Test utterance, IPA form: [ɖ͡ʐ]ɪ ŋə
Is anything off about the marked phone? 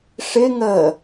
yes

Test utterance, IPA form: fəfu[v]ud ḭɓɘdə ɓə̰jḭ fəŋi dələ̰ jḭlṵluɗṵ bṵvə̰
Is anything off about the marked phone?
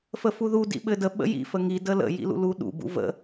yes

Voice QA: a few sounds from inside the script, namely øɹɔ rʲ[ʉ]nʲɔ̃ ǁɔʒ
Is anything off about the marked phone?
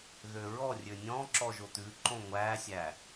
yes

